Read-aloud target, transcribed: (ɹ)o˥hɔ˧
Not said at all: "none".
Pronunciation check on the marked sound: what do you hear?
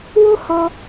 w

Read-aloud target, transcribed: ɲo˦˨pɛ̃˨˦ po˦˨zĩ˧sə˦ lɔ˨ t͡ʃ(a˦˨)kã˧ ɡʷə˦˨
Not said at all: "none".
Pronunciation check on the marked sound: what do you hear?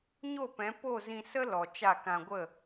a˦˨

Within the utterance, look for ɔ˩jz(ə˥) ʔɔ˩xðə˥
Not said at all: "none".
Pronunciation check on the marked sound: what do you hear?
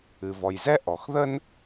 ɛ˥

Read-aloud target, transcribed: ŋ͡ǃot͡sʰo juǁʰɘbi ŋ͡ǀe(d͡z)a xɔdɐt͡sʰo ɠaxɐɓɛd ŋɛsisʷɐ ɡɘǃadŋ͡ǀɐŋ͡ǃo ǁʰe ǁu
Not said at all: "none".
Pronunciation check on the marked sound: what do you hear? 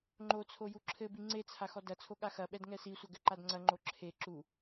t͡sʰ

